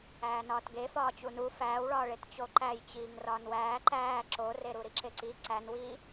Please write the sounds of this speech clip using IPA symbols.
æːnɒːtɡefɒː t͡ɕunu fæːwɭɒːɭet t͡ɕoǃæjt͡ɕiːŋ rɒːnwæː ǃæː ǁoreɾu ɾiǁeǀi ǀænwiː

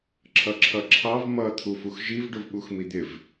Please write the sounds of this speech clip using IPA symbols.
ǁʰʌǁʰʌǁʰɑv mʌ t̪ʰufuxʒiv ɖʊvɓuxmid̪ɪv

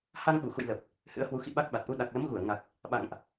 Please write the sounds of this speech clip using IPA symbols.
ha˧ŋɓu˧˩xṵ˧˨j lə˨˩p̚ | hɨ̰˧˥ə̯hwu˨˦ xḭ˧˨ɓa˦˥k̚ɓa˨˩t̚ʔu˧ ɗa˨˩k̚lə˨˦mɣu˧˩ə̯ŋa˨˩k̚ | ɓa̰˧˨ŋʔ

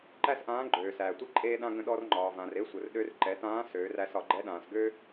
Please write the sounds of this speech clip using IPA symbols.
ǃæ˥sʔãː˧˥ ɡ͡ǃøː˩sæː˩tʷe˥ ǃʼeː˧ɗã˧ ɡə̃˧ɗɔ˧rŋ͡ǃɒː˩vã˩r e˧˥sʷə˩rɗø˧˥r ǃɛ˩˧tãː˧˥ søː˩˧ræ˧s ɒ˩ɡ͡ǃɛ˧˥ɗãː˩sɡø˥

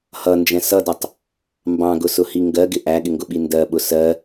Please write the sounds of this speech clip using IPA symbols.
hʌnd͡ʒɛ̃ sʌdʌtˤ | mbɑ̃ɡʊsʊhi ŋɡɜɡɪ ʔæɠɪŋɡʊɓi ndɜɓʊ sɜ

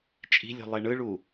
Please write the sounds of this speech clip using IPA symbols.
t͡ʃʼi̤lʲṳlˠe ɳɯɭu

